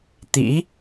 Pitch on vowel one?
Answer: rising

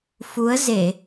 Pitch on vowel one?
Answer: rising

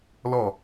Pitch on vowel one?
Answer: falling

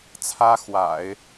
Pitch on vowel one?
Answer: high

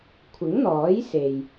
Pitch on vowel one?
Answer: rising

